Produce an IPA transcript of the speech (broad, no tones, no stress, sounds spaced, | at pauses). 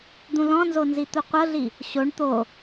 d̪ ũ l ɔ̃ n z o n z i t̪ u qʷ ɤ ɮ i | ɕ o ɳ t̪ o